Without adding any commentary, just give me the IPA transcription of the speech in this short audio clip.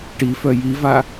ʈ i f œ j i v a

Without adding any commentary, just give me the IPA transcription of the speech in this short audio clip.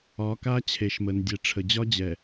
ɒ˨˦ k a˦ t͡ɕʰ e˨ ʃ m ə˨ n dʲ ɛ˨ ʈ͡ʂʰ ə˨ d͡ʑ ɒ˦ d͡ʑ ɛ˨

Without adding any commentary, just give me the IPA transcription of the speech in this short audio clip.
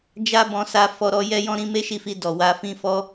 d͡ʒ a˦ b ɔ̃˧ s a˧ f ɔ˧ ɾ ɔ˧ j ɛ˦ j ɔ̃˦ ɾ ĩ˦ m e˦ ʃ i˦˨ f i˧ d ɔ˨ w a˧ f ĩ˧ f ɔ˧

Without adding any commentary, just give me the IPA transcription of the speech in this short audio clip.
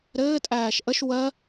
ɾ ɘː tʼ æː ʃ ʔ ə ʃ w ɜ

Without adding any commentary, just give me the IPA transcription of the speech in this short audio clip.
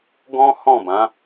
ɡ ɔ̃˦ h ɔ̃˦˨ b ã˨˦

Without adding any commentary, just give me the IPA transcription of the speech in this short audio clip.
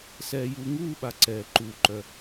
s ɛː˨ j uː˨ ŋ uː˦ ɓ a˨ ǀ ɛː˩ ǃ uː˩ ǃ œ˩

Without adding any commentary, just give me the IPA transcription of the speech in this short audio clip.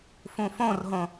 f ũ f õ r ɦ õ

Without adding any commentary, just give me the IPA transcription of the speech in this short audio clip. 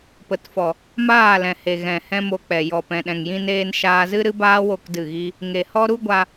p ə˨ t f ɔ˨ | m aː˦˨ l ɛ̃˨ h e˨ ɣ ɛ̃˨ h ɛ̃˦ m o˧ k͡p ɛ˨ j ɔ˨ p ɛ̃˨ ɗ ɛ̃˨ ŋ j ĩ˧ n eː˧ n ʃ aː˧ z ɨ˦ ɾ ɨ˦ b aː˦ w o˦˨ k d ɨ˦˨ ɣ i˦ | ŋ e˨ h ɔ˦ ɾ u˦ ɡʷ a˧

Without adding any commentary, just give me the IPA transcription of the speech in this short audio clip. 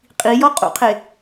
qʼ i j ɔ qʼ ṵ qʰ e

